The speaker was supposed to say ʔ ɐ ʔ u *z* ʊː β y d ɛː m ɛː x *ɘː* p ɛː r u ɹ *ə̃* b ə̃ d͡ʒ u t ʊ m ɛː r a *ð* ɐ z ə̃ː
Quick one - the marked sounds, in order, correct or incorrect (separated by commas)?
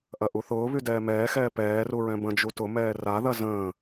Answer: incorrect, incorrect, incorrect, correct